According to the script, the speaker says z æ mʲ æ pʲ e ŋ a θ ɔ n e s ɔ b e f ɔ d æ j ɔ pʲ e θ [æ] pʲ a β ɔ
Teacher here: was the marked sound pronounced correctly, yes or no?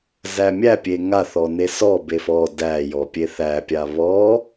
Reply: yes